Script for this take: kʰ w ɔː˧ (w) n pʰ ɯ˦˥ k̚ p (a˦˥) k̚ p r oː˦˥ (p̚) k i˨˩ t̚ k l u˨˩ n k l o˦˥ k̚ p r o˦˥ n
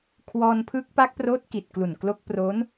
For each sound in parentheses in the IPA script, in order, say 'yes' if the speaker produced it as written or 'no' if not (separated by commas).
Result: no, yes, no